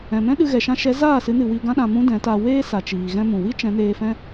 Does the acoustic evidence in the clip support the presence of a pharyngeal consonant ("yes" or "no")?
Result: no